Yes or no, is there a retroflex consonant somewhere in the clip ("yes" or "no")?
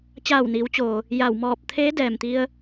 no